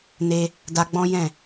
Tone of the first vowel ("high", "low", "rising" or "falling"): high